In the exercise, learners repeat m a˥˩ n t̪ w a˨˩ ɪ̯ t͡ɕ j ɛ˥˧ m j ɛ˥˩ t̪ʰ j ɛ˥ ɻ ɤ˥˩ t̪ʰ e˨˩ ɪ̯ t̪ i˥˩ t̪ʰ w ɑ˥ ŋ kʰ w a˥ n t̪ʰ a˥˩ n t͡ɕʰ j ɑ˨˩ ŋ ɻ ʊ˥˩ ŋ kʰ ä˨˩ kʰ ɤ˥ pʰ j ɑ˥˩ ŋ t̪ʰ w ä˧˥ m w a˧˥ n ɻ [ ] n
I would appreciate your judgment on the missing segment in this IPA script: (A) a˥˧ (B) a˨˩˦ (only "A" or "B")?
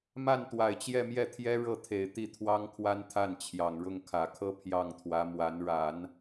B